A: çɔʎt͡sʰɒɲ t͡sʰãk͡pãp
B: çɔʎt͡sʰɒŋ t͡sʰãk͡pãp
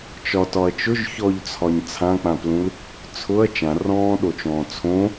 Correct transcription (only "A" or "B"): A